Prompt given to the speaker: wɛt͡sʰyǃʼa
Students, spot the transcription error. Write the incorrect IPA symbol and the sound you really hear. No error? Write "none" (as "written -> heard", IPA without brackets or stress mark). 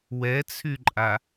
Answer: none